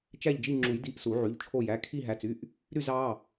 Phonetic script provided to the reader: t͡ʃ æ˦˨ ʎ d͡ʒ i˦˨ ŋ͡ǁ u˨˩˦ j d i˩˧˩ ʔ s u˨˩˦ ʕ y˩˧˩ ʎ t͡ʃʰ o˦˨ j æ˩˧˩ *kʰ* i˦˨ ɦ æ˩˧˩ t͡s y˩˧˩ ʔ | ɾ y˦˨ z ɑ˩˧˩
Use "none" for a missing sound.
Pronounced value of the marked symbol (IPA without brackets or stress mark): kʰ